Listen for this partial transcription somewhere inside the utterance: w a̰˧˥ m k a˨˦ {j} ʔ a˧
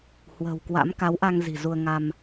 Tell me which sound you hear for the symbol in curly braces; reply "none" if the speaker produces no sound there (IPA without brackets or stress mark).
w